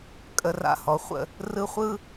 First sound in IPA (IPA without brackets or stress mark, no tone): kʼ